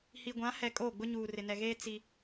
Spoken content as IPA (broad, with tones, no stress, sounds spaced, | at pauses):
h i˨ ɡʷ ã˨˦ h ɛ˨ kʼ oː˦˨ ɡ͡b ʊ˦ ɲ uː˨ r ɪ˨ n ɛ˨ ɣ eː˦ t͡s i˦